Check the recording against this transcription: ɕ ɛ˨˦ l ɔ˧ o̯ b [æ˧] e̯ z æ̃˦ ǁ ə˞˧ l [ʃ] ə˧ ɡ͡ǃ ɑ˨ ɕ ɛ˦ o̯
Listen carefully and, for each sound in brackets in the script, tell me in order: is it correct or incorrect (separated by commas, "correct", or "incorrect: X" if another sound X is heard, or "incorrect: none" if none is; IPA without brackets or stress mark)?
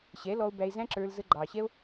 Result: correct, incorrect: z